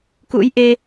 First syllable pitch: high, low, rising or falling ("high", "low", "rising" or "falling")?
rising